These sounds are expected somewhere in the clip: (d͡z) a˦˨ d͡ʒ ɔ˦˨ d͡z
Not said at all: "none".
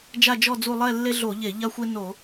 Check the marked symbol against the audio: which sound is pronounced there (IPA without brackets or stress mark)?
d͡ʒ